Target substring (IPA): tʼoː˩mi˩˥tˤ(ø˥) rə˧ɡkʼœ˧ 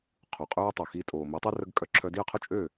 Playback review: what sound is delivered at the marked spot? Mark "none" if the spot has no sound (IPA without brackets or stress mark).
ø˥